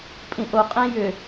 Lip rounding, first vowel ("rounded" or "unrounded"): unrounded